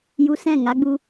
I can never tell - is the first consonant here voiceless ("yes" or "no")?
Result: no